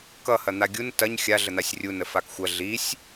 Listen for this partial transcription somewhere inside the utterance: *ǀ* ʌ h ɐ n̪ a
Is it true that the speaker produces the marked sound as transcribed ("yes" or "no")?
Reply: no